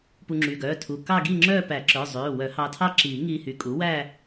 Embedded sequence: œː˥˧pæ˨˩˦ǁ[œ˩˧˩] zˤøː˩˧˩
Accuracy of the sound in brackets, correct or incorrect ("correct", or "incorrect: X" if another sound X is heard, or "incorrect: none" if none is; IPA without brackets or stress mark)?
correct